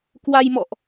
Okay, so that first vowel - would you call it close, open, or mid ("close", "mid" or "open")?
open